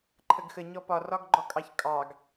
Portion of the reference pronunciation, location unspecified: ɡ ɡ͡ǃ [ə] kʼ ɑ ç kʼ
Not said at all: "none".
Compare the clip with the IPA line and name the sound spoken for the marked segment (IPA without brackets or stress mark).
ɔ